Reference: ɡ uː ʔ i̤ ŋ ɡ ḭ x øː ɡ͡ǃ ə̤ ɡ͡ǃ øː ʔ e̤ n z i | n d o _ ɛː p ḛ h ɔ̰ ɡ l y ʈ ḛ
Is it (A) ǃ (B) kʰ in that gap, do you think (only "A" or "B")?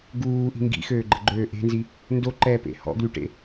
A